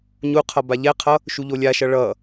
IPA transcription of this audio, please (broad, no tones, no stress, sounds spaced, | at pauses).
ɲ u qʰ ʌ b a ʎ ɛ qʰ ʌ | ʃ u ʎ o lʲ a ʃ ʌ ɭ ʌ